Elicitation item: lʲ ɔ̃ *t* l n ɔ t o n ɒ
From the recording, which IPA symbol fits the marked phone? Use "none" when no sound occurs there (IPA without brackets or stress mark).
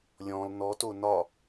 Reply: none